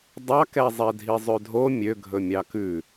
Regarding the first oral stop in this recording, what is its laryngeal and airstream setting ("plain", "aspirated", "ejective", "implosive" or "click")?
plain